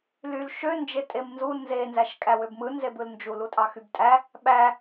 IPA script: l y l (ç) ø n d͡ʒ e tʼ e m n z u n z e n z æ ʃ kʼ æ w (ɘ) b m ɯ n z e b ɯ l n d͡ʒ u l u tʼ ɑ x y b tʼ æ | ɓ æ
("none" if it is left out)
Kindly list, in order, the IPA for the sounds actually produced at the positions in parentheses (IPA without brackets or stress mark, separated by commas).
ʃ, ø